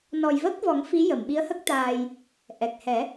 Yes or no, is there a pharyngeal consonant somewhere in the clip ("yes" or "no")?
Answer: no